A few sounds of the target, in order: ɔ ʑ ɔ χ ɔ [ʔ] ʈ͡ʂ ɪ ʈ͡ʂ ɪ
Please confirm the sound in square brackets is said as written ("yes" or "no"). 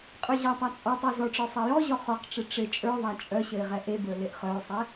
no